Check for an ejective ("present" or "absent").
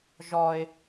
absent